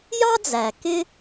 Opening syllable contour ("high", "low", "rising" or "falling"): high